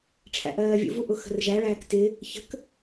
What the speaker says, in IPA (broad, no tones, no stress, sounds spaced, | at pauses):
ʈ͡ʂʰ æ̰ ʔ ɜː vʲ ṵ v u ʔ ʊ x ə̤ r ʒ æ ɭ æː k t ɪ | ç ə̤ k